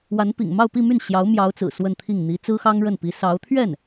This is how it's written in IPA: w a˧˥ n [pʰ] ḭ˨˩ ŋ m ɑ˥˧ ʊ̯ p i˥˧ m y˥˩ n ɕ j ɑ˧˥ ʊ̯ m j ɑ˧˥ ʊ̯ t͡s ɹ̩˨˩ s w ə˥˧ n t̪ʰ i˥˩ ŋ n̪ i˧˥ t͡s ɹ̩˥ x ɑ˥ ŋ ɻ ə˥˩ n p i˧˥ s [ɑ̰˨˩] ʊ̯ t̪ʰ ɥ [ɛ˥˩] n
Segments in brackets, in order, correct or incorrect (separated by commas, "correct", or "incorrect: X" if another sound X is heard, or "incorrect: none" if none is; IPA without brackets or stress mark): incorrect: p, incorrect: ɑ˧˥, correct